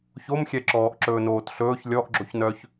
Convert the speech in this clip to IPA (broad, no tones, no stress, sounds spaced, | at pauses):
ç o m xʲ ɛ ǁ ɔː ʔ ǁ ɵː n oː t ɬ ɵː ç lʲ ɔ ʔ ɡ͡ǁ o ç n œ ç